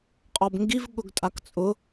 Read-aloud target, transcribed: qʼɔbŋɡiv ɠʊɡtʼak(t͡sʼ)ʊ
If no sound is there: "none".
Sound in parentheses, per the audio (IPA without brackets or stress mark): t͡sʼ